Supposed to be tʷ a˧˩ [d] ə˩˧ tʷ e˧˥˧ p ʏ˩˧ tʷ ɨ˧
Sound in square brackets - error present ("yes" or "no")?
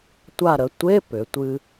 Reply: yes